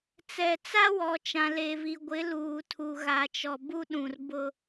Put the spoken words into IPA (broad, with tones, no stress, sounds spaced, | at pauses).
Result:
t͡s ɛ˨ t͡s a˦ w ɔ˨ t͡ʃ ã˨ l e˨ v i˨ ɡʷ ɪ˨˦ l uː˨ tʰ u˨ ɣ a˨ t͡ʃ ɔ˨ b u˦ ɗ ũ˨ r b ʊ˦